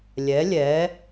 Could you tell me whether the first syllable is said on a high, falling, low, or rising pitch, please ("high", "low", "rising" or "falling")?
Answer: rising